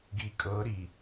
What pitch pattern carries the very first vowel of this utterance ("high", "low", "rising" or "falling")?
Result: rising